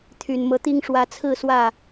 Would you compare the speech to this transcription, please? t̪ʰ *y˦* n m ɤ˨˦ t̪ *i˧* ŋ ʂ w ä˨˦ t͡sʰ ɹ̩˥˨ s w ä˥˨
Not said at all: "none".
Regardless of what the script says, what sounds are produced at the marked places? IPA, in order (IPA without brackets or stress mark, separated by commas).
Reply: y˨˩, i˦